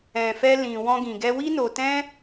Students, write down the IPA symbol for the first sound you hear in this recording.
ɛ̃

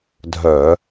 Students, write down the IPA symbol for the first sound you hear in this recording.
dʱ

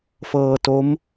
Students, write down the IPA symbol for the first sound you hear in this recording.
f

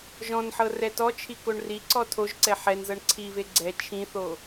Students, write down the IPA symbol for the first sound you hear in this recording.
ʒ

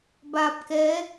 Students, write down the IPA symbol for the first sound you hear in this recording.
b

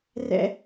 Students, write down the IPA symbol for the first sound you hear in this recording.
r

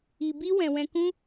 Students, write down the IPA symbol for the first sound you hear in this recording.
i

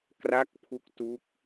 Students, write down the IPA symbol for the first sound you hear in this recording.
k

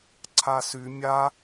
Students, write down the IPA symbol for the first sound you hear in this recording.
ǀʰ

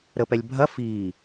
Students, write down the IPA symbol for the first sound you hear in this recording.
ɾ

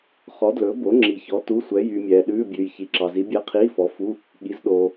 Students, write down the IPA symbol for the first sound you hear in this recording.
χ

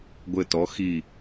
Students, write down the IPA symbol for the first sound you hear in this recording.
ɡʷ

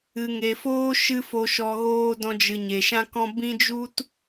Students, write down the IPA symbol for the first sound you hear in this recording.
ɨ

